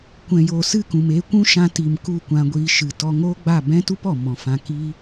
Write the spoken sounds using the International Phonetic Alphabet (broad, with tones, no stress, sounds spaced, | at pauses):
kʷ ɛ̃˨ j oː˨ s ɨ˦˨ k ũ˨ m eː˧ kʷ ũ˦ ʃ ã˧ t i˨ m k u˦˨ kʷ ã˧ ɡʷ iː˧ ʃ ɨ˨ t ɔ˧ ŋ oː˦ ɡ͡b a˦˨ b ɛ̃˦ t u˦ p ɔ˨ m ɔ̃˨ f ã˧ k iː˦